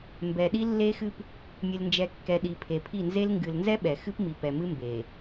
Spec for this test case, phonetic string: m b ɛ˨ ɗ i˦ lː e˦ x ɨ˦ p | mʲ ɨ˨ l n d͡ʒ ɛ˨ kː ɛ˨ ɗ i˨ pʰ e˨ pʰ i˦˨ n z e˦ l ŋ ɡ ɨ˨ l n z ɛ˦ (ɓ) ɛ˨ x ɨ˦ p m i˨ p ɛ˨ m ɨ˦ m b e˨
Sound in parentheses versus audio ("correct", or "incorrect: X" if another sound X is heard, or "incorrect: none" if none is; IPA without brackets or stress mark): correct